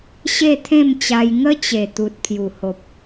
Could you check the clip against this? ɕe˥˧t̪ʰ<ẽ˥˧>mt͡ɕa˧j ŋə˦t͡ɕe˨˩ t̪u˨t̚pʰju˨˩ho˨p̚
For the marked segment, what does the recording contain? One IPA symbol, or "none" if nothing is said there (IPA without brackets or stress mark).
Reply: ẽ˥˧